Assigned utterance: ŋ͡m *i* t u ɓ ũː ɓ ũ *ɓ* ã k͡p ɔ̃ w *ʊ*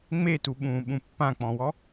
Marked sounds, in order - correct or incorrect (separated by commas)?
incorrect, incorrect, incorrect